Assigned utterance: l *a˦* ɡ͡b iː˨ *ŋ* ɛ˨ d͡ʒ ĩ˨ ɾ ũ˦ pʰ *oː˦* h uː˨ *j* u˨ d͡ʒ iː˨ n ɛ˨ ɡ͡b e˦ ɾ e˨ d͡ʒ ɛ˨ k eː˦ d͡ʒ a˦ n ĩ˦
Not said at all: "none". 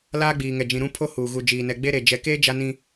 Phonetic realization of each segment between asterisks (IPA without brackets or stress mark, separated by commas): aː˦, ŋ, o˦, ɣ